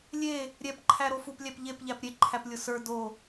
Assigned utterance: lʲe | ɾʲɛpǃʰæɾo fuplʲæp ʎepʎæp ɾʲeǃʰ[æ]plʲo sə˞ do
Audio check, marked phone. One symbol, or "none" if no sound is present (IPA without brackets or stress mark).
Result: æ